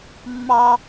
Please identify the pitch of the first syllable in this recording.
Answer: high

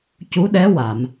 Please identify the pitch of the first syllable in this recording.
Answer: rising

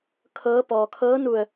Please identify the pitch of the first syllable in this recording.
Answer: rising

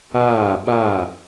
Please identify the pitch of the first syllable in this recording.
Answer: falling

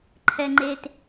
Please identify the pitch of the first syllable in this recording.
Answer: low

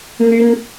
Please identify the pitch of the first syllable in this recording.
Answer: high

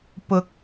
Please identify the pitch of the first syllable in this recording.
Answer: rising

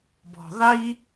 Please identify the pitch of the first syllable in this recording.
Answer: low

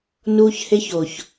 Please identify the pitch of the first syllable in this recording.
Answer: high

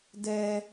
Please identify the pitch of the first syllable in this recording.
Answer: high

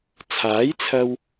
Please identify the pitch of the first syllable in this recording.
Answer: rising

